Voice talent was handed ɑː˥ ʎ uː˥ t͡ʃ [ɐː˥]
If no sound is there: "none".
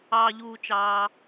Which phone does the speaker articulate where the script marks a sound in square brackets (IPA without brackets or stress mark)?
ɑː˥